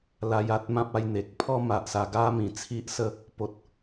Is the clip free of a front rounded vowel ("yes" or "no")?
yes